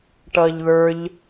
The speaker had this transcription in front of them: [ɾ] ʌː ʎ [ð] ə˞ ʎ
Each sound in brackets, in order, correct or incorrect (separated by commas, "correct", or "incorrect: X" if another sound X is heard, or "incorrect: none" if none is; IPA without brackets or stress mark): incorrect: ʈ, correct